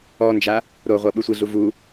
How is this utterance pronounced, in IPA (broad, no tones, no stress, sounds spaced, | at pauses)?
ɔ n d͡ʒ a | ɾ o ʁʷ ɤ ɓ ɯ sʷ i ɮ u v u